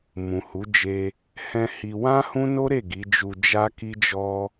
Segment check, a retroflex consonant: absent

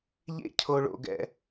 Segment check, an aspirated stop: present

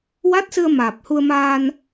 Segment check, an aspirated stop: absent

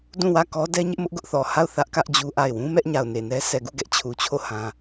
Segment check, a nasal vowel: present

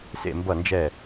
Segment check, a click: absent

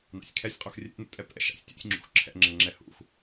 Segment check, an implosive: absent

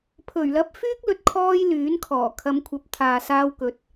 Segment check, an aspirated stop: present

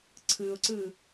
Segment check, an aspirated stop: present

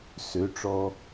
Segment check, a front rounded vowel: present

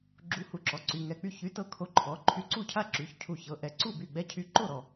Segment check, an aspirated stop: present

